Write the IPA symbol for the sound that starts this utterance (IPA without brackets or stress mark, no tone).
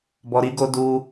b